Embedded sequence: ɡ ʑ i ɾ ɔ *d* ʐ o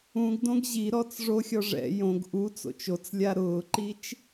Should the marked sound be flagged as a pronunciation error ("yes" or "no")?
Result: yes